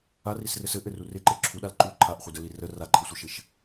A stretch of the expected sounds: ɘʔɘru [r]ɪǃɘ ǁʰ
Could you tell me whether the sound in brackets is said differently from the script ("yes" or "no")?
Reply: no